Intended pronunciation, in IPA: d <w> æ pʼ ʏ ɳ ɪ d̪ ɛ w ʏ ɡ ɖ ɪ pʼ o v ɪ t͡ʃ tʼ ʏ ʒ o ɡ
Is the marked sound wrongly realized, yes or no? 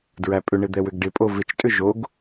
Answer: yes